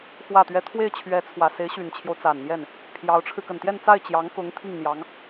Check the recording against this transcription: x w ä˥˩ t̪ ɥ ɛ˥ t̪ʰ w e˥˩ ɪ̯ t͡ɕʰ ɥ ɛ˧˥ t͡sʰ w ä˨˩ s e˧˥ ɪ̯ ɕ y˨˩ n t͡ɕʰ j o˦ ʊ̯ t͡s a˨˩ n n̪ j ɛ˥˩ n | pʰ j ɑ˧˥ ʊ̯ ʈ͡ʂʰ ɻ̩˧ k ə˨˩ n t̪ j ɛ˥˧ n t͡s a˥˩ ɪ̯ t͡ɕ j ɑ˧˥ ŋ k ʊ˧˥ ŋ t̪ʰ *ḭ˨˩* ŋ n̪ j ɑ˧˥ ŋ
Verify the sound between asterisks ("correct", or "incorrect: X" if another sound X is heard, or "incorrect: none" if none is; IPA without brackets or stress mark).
incorrect: i˥˩